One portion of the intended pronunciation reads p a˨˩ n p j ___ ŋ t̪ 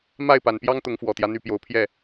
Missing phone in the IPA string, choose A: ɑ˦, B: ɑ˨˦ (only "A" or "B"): A